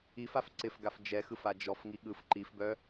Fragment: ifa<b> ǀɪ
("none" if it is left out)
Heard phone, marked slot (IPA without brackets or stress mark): f